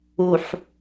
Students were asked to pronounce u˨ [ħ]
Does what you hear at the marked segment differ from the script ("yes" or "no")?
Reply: no